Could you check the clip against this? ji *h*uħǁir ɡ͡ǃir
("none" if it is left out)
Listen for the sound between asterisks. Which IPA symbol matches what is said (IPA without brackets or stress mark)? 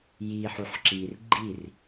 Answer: ħ